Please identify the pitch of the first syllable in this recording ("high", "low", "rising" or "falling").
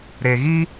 low